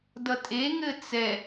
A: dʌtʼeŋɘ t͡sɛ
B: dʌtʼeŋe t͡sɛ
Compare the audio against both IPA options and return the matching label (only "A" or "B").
A